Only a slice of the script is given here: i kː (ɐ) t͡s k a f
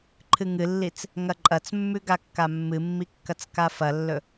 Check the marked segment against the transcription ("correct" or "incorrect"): correct